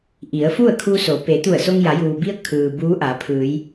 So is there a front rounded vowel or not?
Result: no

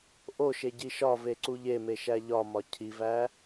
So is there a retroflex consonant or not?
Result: no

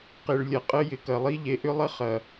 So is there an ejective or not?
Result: yes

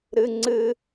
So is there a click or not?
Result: yes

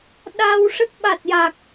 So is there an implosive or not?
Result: yes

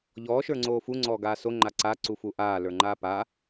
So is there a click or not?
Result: yes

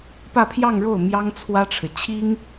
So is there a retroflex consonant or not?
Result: yes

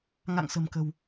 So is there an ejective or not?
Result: no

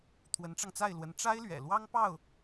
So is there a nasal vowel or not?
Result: no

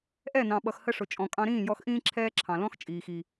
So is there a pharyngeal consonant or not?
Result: no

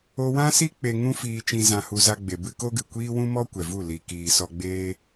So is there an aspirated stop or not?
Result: no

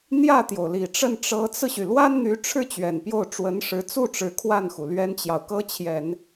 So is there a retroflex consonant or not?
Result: yes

